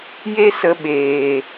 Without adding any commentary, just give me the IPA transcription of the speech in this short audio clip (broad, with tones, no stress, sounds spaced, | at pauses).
j e˦ s ə˧ ɓ eː˨